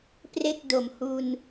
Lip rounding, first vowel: unrounded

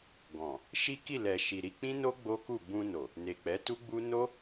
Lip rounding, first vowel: rounded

